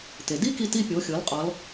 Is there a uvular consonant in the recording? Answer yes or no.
yes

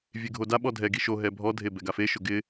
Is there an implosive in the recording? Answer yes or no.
yes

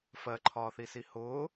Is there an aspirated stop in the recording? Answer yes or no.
yes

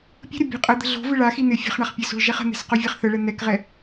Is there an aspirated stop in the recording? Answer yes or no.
no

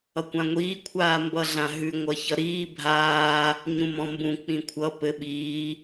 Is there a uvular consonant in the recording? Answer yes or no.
no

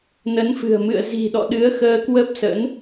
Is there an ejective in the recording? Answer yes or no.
no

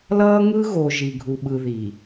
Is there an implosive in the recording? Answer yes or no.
yes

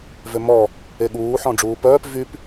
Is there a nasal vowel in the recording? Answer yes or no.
yes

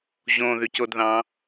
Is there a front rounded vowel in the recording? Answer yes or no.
yes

